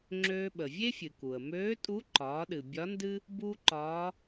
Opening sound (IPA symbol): ŋ͡ǁ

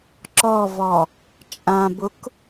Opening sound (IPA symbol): ǁ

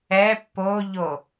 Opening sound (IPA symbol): ɛ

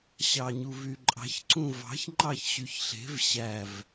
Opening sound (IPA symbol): ɕ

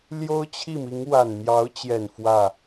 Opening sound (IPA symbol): l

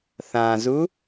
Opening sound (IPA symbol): θ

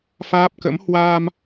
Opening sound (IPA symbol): f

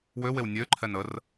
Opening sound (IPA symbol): w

